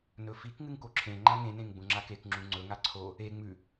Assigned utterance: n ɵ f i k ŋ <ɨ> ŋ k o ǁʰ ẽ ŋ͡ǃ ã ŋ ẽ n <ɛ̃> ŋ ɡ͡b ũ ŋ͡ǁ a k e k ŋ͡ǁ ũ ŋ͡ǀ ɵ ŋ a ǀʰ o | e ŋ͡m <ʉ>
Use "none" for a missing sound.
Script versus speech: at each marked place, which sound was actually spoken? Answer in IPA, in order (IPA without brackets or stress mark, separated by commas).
ɨ, ẽ, ʉ